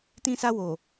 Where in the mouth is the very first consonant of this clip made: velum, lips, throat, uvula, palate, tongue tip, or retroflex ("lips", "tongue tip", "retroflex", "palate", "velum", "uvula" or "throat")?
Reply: tongue tip